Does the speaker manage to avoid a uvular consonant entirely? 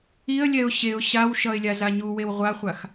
no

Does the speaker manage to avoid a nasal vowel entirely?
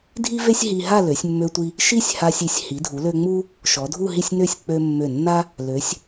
yes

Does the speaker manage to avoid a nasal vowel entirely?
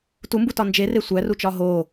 yes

